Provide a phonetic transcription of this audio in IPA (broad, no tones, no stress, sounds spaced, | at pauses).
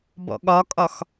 b ɔ̰ ɠ ɒ kʼ ɒ x